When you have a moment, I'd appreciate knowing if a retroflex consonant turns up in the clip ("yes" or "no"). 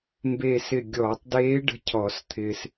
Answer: yes